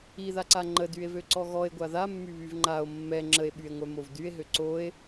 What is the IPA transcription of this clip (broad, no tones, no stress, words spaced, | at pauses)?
iðaǀa ŋ͡ǃədye̯vøǀɔ ɣɔe̯ɡʷa ðamːyβyv ŋ͡ǃao̯ mːɛ ŋ͡ǁəe̯ɓye̯ŋʷœmov dye̯ɦø ǀoe̯